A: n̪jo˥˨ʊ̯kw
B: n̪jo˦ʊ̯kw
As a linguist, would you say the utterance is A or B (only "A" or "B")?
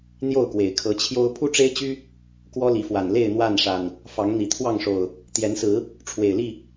A